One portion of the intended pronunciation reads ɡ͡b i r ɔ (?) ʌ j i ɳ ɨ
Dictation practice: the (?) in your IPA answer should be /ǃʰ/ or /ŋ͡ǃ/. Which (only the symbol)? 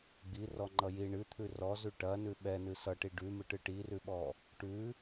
ŋ͡ǃ